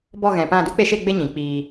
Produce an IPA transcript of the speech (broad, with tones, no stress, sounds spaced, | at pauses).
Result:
b ɔ˦˨ ɣ ɛ̃˨ p ã˦˨ d u˦ k͡p e˧ ʃ e˦˨ ɡ͡b e˧ ɲ ĩ˨ k͡p iː˧